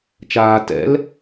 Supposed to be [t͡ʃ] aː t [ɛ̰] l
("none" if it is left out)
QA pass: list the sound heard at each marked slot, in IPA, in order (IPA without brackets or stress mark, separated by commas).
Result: t͡ʃ, ɛ̰